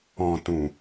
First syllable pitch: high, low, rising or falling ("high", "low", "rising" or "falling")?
low